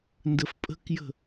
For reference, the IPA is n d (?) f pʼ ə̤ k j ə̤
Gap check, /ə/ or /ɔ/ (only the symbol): ə